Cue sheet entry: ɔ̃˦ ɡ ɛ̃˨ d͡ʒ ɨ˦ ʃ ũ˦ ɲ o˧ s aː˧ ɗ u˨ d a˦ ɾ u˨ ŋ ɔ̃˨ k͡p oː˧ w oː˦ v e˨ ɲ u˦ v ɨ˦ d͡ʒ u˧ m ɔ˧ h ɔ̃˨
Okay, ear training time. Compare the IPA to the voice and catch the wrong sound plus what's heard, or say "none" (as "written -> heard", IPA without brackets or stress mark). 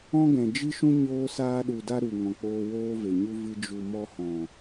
o˧ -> oː˧